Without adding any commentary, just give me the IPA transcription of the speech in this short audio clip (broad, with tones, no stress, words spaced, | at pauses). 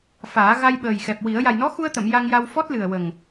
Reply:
faː˨˩˦ ɣa˧jɓəː˨˩jxɛ˨˩p̚wi˨˩˦ə̯ ja˨˩jnɔ˧˥xu˧ə̯t̪ə˨˩˨m ja˧ŋja˧w fɔ˦˥t̚lɨ˨˩ə̯wə˨˩ŋ